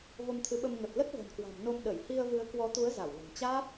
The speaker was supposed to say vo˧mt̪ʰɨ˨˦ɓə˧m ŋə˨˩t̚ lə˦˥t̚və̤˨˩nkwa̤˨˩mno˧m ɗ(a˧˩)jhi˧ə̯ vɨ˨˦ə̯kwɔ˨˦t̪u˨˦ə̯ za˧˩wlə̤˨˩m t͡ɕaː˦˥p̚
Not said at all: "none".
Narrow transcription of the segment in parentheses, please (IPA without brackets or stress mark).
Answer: ə˧˩